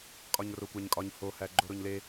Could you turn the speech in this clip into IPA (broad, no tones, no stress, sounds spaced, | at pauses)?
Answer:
kʼ ɒ ɲ r o kʷ æ ɲ kʼ ɒ ɲ h o h æ ɡ͡ǃ o ɾ o ɲ l e